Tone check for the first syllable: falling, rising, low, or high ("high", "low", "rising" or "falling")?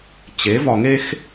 rising